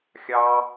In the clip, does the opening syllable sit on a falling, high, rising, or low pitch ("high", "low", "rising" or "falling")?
high